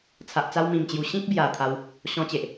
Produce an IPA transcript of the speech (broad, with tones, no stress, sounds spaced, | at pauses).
t͡sʰ a˨ ʔ t͡s a˧ w m ĩ˨˩ m t͡ɕ j u˨˩ ɕ ĩ˦ k̚ b j a˨˩ t̪ʰ a˧ w | ɕ ɔ̃˧ t͡ɕ e˨ ʔ